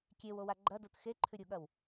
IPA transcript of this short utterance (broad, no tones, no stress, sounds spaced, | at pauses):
kʲ e w o w a ɡ͡ǃ ɐ d o t x e ǃʰ ʉ ɾʲ u ɠ ɐ w